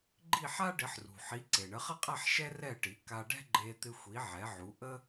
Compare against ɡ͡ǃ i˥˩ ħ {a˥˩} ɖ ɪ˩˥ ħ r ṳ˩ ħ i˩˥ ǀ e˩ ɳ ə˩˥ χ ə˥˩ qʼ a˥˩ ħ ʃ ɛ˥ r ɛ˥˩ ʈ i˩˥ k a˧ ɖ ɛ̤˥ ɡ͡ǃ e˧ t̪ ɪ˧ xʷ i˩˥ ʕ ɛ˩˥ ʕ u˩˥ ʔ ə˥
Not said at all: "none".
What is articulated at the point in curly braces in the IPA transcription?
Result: a˥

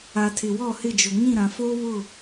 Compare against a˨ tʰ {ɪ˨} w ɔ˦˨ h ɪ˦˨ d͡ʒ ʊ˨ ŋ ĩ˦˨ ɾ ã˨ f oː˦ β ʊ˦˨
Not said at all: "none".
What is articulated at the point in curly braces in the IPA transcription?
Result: ɪ˨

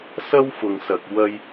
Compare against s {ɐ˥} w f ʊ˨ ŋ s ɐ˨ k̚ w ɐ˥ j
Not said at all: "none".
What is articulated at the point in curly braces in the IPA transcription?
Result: ɐ˥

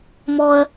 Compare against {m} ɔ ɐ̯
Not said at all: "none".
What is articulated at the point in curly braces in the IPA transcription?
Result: m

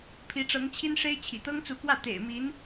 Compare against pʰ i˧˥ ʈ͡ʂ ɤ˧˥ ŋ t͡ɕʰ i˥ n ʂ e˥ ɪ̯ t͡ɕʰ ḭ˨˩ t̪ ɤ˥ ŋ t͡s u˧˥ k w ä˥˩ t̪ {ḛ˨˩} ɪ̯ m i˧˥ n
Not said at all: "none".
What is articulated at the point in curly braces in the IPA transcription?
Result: ḛ˨˩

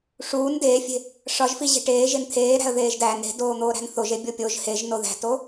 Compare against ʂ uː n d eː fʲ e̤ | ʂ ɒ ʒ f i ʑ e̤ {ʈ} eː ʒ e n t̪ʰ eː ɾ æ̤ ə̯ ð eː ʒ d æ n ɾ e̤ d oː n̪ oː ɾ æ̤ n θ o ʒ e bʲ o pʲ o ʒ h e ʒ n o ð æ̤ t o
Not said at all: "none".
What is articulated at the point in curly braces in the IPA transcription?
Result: ʈ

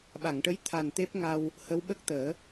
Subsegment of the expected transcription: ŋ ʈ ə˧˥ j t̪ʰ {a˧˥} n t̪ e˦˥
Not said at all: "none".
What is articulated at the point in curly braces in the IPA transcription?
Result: a˨˩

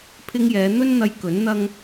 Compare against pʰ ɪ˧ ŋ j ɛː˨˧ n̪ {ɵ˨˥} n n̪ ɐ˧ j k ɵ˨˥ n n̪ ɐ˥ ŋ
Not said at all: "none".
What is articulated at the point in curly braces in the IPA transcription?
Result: ɵ˥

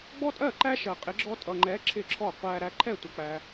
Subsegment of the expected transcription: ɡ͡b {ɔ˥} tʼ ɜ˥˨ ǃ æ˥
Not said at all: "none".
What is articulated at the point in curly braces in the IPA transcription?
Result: ɔ˥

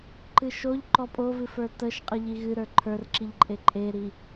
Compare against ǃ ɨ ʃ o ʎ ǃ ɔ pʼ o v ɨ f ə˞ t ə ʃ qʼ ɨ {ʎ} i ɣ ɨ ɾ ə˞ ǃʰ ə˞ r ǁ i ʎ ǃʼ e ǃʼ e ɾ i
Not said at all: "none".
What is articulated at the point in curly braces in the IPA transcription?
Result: ʎ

